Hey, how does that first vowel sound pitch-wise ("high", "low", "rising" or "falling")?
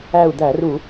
falling